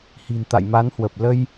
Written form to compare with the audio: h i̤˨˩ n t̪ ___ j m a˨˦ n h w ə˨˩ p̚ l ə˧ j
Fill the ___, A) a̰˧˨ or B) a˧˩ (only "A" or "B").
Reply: A